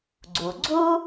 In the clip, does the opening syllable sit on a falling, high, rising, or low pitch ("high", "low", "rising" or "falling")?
low